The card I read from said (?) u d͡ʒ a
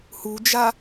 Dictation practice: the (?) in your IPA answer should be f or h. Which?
h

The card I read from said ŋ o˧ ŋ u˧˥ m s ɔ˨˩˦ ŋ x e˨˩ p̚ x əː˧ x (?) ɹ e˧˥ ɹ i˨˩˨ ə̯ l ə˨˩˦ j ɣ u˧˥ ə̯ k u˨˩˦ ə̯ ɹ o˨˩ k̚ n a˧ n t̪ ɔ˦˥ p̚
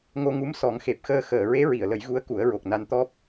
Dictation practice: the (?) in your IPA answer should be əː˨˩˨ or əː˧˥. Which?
əː˨˩˨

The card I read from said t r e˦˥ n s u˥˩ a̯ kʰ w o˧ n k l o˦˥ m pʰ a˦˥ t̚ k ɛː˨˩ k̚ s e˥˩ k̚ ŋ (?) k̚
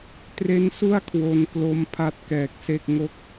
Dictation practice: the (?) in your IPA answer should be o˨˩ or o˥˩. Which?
o˥˩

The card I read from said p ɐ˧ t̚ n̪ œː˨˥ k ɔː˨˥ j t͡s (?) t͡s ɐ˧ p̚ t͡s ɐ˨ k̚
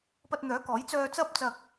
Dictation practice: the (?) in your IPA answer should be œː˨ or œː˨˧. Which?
œː˨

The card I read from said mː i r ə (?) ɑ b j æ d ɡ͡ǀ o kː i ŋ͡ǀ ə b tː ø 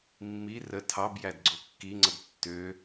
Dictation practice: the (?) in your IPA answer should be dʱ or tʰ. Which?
tʰ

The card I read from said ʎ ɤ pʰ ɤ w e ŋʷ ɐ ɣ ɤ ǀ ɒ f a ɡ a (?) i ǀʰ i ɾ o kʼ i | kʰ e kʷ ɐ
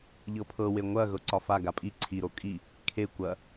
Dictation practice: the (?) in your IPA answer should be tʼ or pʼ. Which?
pʼ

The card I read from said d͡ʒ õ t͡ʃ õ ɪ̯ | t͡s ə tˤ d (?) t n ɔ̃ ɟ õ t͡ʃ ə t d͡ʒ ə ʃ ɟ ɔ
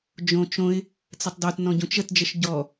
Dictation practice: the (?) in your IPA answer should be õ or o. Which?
o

